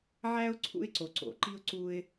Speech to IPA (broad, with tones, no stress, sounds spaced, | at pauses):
ʕ æ˥ ʊ̯ ǀʰ ṵ˥ ɪ̯ ǀ o˩ ǀ o̰˩ ǃ i˥ ʊ̯ ǀ u˧ ɪ̯